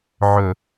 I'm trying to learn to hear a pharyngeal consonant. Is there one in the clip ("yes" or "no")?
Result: yes